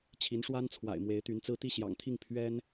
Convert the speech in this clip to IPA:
t͡ɕʰ i˧˥ n ʂ w a˥ n t͡sʰ w a̰˨˩ ɪ̯ m w e˧˥ ɪ̯ t̪ y˧˥ n t͡s ɹ̩˥˧ t̪ i˥˩ ɕ j ɑ̰˨˩ ŋ t̪ʰ i˥˩ ŋ pʰ ɥ ɛ˥ n

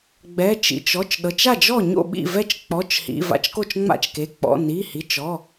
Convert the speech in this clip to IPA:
ɡ͡b ɛ˩˧˩ t͡ʃ ḭ˩˧˩ t͡ʃ ɔ˩˧˩ t͡ʃ ɗ ɤ˩˧˩ t͡ʃ a˥˩ d͡ʒ ɔ˥˩ ɲ o̰˥˩ ɓ ḭ˥˩ v ɛ˥˩ t͡ʃ k͡p ɔ˩˧˩ t͡ʃ h ḭ˩˧˩ v a̰˥˩ t͡ʃ k o˥˩ t͡ʃ ŋ͡m a̰˥˩ t͡ʃ k e˩˧˩ k͡p ɔ̰˩˧˩ n i˩˧˩ h i˩˧˩ t͡ʃ ɔ˩˧˩

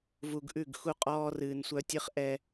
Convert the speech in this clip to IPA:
v u˨ ɡ ʔ ʉ˦˨ ɡ x u˦ qʼ ɔː˦ r ɨː˨ n sʷ œ˦ tʲ ɨ˦ χ ʔ ɛ˦

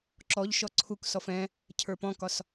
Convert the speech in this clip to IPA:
ǁ ɔ ʎ ʃ ɔ ǀʰ u k s ɔ f ɛ̃ | cʰ ə˞ p ɔ̃ k ɒ s

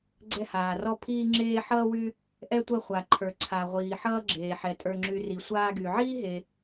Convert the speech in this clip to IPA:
ɡ͡ǀ ɛ˥ h aː˧ r ɔ˥ pʰ iː˥ ŋ͡ǁ eː˥ ħ ʌː˥ w y˥ | ʔ ɛ˥ tʷ ɐ˥ χʷ a˧ ǃʰ ə˞˧ ǀʰ a˧ ʁʷ iː˧ ħ ʌː˥ ɡ͡ǁ eː˧ ħ ɛ˧ tʼ ə˞˧ ŋ͡ǁ y˧ r i˧ sʷ aː˥ ɡ y˧ ʕ iː˥ ɦ e˧

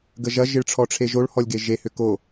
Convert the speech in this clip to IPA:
ɡ ə ʒ ɐ ʒ ɪ ɭ ʈ͡ʂʰ ɔ ʈ͡ʂʰ e ʒ o ɭ h ɔ lʲ ɡ e ʒ e h ʏ k o

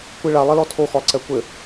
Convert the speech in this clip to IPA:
kʷ i ɭ a lˠ ɛ l ɔ tʰ o x ɔ lˠ ǀ ɛ kʷ ɘ

